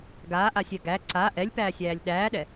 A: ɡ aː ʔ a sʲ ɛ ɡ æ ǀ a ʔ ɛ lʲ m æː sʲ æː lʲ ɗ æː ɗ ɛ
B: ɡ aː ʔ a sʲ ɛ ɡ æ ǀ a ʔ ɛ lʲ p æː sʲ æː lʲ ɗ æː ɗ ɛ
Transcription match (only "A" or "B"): B